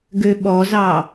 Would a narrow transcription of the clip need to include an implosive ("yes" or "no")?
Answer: yes